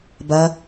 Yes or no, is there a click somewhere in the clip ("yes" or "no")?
no